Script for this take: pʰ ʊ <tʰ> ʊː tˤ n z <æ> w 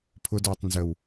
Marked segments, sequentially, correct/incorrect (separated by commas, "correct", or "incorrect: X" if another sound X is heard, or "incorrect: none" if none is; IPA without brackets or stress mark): incorrect: d, incorrect: ə